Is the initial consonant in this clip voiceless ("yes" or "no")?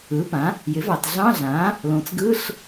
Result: yes